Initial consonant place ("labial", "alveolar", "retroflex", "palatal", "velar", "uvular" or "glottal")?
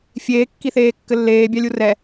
labial